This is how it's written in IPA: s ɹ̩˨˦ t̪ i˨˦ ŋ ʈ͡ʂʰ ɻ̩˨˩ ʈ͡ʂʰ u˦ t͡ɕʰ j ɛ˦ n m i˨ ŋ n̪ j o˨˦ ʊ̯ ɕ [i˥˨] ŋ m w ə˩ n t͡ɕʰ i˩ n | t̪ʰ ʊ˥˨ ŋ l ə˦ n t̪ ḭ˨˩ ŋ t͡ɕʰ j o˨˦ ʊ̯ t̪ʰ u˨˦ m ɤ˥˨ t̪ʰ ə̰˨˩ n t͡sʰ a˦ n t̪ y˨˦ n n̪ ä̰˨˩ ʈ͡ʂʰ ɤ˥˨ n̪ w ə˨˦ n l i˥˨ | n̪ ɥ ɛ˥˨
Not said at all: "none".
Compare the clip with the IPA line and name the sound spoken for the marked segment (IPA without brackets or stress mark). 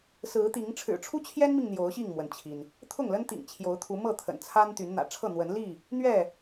i˥˨